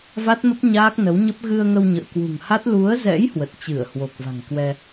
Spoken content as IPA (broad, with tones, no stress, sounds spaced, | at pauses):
v a˦˥ t̚ m ə˦˥ p̚ ɲ aː˦˥ k̚ n ə˨˦ w ɲ ə˦˥ p̚ ɣ ɨ˧ ə̯ ŋ ə˧ w ɲ ə̰ː˧˨ k w ṳ˨˩ ŋ h a˦˥ t̚ l u˨˦ ə̯ z ɛ̰˧˥ j h w ə˨˩ t̚ t͡ɕ ɨ˧˩ ə̯ h w o˨˩ k̚ v a̤˨˩ ŋ k w ɛ˧